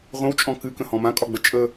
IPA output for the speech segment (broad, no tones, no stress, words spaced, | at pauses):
ʁʷə̃wt͡ʃʼɔ̃ kɨkə̃hɔ̃ mãkʼɒɡ͡bə t͡ʃʼə